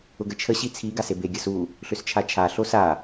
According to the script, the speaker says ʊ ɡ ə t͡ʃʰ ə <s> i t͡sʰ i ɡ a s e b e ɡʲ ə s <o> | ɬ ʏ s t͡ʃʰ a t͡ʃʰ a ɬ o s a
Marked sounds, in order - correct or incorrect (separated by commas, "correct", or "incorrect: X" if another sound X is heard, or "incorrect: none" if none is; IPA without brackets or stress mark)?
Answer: incorrect: ɕ, incorrect: u